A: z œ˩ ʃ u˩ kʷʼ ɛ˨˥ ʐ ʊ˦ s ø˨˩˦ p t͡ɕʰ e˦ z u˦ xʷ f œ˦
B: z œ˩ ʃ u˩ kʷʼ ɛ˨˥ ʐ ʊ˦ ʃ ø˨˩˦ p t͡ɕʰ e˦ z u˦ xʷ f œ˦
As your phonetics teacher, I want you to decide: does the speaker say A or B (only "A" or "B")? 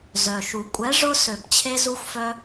A